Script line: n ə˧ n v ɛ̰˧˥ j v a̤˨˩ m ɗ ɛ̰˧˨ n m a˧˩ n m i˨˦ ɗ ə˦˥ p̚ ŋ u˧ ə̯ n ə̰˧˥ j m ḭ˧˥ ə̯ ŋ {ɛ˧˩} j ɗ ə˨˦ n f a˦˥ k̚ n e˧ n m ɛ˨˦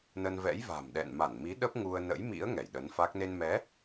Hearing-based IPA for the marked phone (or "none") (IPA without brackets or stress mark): ɛ˧˩